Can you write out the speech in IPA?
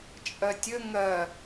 t͡ʃʼ ɐ tʲ ə ŋ ɐ

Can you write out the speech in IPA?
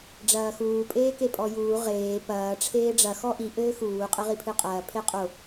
ɖ͡ʐ ɐː x uː pʼ eː k e pʼ ɔ j uː ʁ eː p ɐː ʈ͡ʂʰ eː ɖ͡ʐ ɐ x ɔ ʔ i ʔ ɘː x uː qʼ ɘ ʁ i pʰ ɨ qʼ ɐː pʰ e qʼ o

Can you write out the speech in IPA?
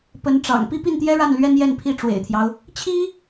p ə˧˥ n ʈ͡ʂ ɑ̰˨˩ ŋ p i˥˧ p i˥˩ n t̪ j ɛ˥ ɻ a˥˩ n l ɥ ɛ˥ n j ɛ˥˧ n pʰ i˥˩ ʈ͡ʂ w ḛ˨˩ ɪ̯ t̪ʰ j ɑ˦ ʊ̯ | t͡ɕʰ i˥

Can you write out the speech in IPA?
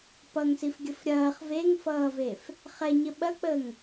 p ʌ ŋ s i f ɡʲ ə f ɾʲ ɐː χ v e ŋ f ʌː v e f | χ ɛ ɲ ə ɓ ɐ k͡p əː ŋ

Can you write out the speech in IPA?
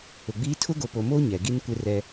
ʊ˨ ɡ͡b iː˦ tʰ ʊ˦ ɡ o˨ p o˨ m o˦ ɲ ɛ˨ ɡ i˦ n kʷ ɪ˦ r ɛ˦

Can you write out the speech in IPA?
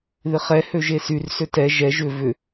ð ɪ χ ɛ h ø ʒ e s y r s ø t ɛ ʒ ɛ ʒ ʏ v ʏ

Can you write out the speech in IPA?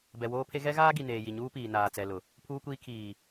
b ɛ˨ w oː˦ pʰ e˦ ɣ ɛ˦ ɣ aː˦ ɡ i˨ n eː˨ j i˨ ɲ uː˦ p iː˨ n aː˨ t͡s ɛ˨ l ʊ˨ | pʰ uː˦ kʷ iː˦ kʰ iː˨

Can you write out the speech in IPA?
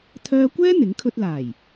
t̪ʰ œː˥ kʷ ɛː˥ n̪ ɪ˨˥ ŋ kʰ ɵ˧ t̚ l aː˨˩ j

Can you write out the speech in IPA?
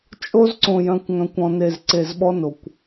t͡ʃʼ o˦ z ǀ õ˨ j œ̃˨ kʷ ŋ œ̃˨ kʷ ɔ̃˨ n e˨ z ǀ e˨ z ɓ ɔ˦ n o˨ kʷ

